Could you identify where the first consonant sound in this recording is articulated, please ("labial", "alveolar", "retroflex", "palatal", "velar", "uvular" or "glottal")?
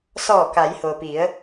alveolar